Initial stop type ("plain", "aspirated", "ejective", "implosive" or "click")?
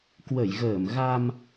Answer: plain